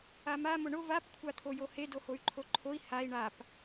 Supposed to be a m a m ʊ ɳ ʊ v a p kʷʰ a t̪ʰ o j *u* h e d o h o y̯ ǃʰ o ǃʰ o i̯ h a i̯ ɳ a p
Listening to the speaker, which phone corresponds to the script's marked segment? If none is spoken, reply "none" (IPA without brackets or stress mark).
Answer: o